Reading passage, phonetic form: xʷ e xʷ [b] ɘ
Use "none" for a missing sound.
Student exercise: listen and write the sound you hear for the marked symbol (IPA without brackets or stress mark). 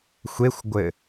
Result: ɡʷ